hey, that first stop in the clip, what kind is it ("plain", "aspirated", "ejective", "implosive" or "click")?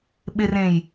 implosive